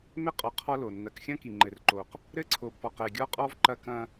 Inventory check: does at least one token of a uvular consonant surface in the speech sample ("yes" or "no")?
yes